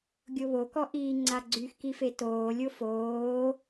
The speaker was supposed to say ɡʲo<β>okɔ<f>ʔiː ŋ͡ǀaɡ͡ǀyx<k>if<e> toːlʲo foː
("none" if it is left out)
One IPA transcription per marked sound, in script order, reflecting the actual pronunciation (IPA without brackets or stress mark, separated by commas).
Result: β, none, k, e